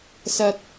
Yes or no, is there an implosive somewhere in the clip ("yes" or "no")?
no